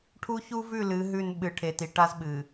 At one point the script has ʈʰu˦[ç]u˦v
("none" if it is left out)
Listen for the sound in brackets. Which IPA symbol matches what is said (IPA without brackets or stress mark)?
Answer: ç